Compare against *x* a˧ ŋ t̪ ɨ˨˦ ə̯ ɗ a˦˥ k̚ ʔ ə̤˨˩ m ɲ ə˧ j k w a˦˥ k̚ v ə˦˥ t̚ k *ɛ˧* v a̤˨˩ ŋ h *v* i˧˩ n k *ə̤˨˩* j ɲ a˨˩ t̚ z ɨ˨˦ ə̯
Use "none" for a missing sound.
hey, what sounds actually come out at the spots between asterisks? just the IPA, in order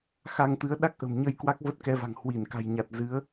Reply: x, ɛ˧, w, a̤˨˩

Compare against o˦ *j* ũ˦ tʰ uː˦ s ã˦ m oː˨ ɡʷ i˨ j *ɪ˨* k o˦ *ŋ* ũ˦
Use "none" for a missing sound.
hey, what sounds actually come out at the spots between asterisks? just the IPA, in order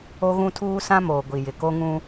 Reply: ɣ, ɪ˨, ŋ

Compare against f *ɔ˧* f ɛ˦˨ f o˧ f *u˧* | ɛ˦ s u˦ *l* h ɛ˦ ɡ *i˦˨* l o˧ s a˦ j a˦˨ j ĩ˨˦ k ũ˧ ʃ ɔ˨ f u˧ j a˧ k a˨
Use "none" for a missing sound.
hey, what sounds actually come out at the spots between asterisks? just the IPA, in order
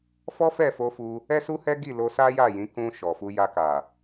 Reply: ɔ˦, u˧, none, i˦˨

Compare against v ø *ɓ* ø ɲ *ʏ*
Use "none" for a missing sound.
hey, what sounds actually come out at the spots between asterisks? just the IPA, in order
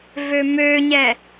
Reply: m, ɛ

